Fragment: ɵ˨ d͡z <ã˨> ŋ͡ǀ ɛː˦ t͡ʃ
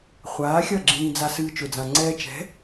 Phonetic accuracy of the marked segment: correct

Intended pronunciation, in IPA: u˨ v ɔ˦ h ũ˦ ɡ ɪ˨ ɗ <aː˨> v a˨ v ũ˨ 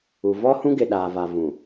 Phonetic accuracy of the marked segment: correct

